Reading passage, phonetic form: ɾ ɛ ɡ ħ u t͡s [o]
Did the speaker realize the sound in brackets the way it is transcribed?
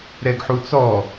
no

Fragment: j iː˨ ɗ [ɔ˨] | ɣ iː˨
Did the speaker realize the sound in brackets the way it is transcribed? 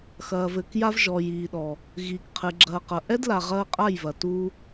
yes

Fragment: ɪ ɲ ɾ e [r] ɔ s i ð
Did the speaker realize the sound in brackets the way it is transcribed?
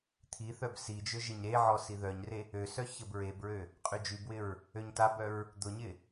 no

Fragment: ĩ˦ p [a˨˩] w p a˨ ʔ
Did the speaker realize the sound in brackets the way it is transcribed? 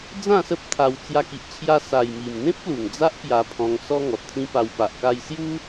no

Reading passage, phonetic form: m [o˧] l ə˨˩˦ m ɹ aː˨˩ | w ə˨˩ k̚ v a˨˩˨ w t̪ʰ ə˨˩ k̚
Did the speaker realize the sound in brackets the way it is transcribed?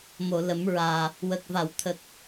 no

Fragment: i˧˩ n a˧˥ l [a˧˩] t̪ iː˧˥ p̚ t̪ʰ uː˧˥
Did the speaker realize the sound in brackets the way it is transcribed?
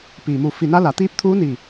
no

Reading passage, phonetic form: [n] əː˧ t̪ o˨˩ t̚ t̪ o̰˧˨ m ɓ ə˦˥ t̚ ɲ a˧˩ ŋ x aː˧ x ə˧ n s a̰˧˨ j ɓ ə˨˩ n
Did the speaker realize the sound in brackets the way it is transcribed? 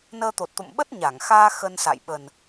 yes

